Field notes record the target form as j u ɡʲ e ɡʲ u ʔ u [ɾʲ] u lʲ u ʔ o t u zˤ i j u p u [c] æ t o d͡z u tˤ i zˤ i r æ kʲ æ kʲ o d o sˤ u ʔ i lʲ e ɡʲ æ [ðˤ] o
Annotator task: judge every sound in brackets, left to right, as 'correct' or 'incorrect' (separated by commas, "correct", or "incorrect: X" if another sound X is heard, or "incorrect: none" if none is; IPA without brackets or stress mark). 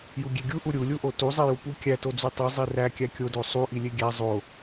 correct, incorrect: kʲ, incorrect: zˤ